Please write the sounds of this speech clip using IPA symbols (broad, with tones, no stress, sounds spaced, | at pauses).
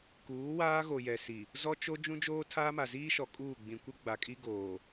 k uː˨˦ w aː˦ ɣ o˨ j ɛ˨ s i˨ | z ɔ˦ t͡ʃ o˦ d͡ʒ ũ˦ d͡ʒ oː˦ tʰ aː˦ m a˨ z iː˦ ʃ ɔ˨ kʼ uː˦˨ ɡ͡b ĩ˨ kʷ ɪ˦ ɡ͡b a˨ kʼ i˦ ɡ oː˨